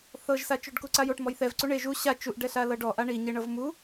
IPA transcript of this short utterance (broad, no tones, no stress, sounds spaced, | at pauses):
θ ɤ ʒ s a t͡ʃ o ɖ k u ǀ a j o ʈ m ɔ j θ ɛ v ǀ u ɳ e ʒ u ɕ a t͡ʃ u ʔ ɖ ɛ ɬ a l ɤ ɖ ɔ ʔ a ɳ i ɲ e ɳ ɤ v m u